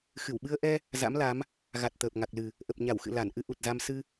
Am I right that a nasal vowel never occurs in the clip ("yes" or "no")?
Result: yes